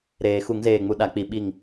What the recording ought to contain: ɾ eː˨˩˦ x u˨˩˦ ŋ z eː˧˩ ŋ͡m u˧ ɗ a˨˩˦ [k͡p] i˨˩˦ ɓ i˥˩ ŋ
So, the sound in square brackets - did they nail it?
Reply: yes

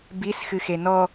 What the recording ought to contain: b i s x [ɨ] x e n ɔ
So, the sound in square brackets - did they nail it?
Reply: yes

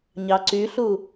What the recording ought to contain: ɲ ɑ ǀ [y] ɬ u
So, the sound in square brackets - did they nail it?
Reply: yes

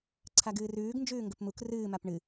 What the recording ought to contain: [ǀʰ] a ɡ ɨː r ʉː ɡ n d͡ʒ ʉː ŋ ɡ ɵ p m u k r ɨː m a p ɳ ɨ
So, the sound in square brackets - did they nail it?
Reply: yes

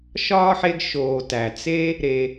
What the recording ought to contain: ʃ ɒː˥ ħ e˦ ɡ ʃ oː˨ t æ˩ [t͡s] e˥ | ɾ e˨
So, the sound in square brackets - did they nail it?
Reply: yes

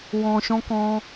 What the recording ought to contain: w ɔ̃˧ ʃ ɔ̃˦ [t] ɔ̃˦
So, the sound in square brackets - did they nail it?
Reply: no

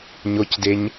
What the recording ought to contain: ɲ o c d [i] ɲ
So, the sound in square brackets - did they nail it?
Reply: no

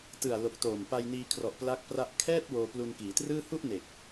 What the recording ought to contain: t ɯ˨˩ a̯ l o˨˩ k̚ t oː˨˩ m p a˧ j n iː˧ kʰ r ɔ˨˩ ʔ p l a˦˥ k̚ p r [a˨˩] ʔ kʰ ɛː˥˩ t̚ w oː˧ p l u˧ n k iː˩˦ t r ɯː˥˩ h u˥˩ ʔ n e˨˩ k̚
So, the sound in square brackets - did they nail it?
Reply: no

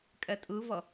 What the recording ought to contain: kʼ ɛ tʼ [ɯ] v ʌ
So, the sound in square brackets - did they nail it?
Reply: yes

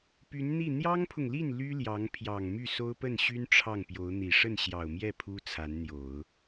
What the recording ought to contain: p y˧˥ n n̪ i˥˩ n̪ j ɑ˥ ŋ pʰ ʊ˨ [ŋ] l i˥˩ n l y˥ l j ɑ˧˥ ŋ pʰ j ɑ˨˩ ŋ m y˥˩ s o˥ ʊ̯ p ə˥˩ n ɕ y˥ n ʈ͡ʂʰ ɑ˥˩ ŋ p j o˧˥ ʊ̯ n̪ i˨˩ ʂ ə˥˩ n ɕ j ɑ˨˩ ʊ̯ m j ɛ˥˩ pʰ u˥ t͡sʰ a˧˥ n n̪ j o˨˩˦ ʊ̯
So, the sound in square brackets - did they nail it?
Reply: yes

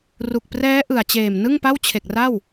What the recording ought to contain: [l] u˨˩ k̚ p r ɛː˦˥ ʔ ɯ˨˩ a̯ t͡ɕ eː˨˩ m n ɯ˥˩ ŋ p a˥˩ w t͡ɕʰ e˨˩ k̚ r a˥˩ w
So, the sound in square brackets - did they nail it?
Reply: no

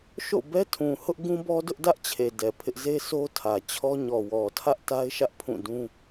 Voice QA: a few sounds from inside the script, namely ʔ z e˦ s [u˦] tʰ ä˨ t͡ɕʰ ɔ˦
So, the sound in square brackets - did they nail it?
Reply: no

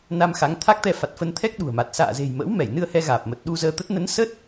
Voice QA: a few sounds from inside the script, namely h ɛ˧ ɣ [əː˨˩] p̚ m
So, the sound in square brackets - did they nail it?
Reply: no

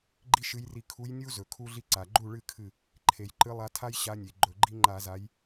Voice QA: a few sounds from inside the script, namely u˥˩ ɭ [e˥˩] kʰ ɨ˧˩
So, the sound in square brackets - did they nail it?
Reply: no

